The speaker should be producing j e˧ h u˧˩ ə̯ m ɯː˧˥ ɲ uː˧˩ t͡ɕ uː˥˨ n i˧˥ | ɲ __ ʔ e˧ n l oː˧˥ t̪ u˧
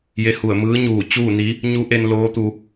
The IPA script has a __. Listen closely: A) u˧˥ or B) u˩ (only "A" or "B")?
A